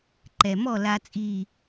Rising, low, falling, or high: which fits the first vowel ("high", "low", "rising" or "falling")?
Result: low